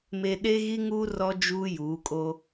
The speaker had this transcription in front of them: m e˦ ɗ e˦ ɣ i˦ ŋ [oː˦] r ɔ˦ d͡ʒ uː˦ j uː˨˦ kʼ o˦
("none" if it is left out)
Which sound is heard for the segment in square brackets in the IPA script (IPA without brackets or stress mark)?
uː˦